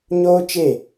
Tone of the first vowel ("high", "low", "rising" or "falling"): high